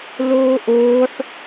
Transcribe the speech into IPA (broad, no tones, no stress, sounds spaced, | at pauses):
l oː ʔ oː ħ